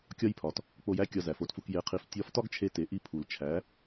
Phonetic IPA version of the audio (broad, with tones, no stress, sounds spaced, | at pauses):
kʲ ɒ˥ j pʰ ɒ˩ t | k͡p o˧ j æ˥ kʲ ɒ˧ z æ˩ f o˩˥ t f u˧ k j e˩˥ qʰ i˩˥ f tʲ ɒ˧˥ f t ɒ˥ ɡ t͡ʃʰ e˧ t e˩˥ ʔ i˧ pʰ u˩ l t͡ʃʰ æ˩˥